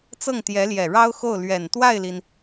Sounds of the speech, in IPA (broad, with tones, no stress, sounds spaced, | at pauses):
t͡s ɤ˥˩ ŋ t̪ j ɛ˧˥ l j ɛ˨˩ ɻ ɑ˥ ʊ̯ x o˥˩ ʊ̯ l ɥ ɛ˨˩ n t̪ w a˥˩ ɪ̯ l i˩ n